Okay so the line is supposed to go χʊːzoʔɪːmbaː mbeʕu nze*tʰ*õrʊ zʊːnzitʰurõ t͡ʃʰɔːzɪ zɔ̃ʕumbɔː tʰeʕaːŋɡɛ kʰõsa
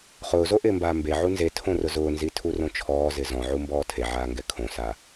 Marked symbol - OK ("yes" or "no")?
yes